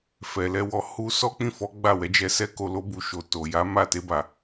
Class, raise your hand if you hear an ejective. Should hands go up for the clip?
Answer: no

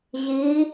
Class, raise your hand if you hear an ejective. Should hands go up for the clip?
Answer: no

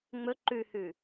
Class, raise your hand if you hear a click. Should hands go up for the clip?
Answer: yes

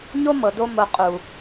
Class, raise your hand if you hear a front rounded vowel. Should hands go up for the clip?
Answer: no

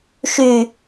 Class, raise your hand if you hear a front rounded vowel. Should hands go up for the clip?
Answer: yes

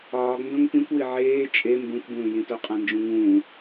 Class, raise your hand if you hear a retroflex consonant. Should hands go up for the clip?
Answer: no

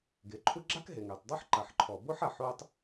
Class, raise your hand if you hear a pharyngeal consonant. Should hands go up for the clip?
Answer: yes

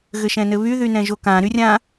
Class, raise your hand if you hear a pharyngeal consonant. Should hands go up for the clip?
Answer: no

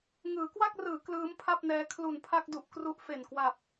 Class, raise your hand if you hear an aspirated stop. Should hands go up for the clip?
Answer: yes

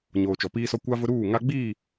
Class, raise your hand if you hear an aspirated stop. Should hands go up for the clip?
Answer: no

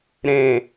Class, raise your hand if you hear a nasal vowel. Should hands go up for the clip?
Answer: yes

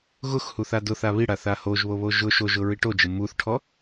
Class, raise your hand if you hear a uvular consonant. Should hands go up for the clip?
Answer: no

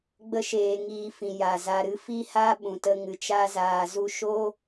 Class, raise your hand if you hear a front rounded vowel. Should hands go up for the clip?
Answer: no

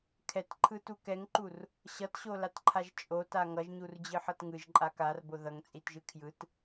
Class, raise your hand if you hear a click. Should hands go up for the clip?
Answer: yes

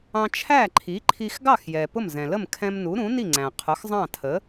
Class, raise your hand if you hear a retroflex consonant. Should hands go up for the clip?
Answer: no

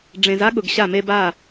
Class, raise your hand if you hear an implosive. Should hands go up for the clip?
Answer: yes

